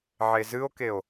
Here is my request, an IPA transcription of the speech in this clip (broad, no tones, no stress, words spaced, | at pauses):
ʕezɨo̯keo̯